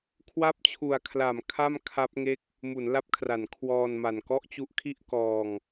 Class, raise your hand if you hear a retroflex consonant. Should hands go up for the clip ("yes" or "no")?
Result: no